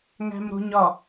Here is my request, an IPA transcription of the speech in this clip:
ŋ æ̤ m ɾ o̤ ɲ ɒ

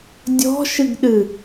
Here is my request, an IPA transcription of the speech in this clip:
dʲ ɔ̤ ʃ ɨ ɡ ɗ ɨ

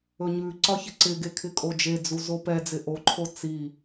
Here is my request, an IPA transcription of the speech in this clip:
ɵ ɲ ʉ ǀ ɒ ç ɪ ǀ ɪ ɡ e kʰ ɪ kʼ o d͡ʒ e d͡z u z o p ɛ d͡z ɪ ʔ o ǃʰ o t͡s i

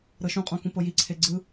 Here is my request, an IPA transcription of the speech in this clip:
ɾ ɤ ʃ ũ qʼ õ k ũ p ɤ j i ǀʰ e ɡ͡ǀ ɯ

